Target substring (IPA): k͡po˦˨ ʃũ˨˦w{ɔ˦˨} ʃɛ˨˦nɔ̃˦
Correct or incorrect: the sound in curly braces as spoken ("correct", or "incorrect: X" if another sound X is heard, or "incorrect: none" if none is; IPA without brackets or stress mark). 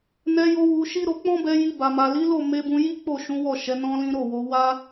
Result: correct